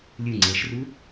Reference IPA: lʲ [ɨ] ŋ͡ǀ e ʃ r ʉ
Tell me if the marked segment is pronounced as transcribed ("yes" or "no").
yes